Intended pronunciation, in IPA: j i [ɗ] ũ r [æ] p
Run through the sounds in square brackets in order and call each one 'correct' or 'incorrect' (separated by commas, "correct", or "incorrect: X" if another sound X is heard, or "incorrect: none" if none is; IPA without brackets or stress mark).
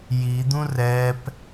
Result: incorrect: d̪, incorrect: ɛ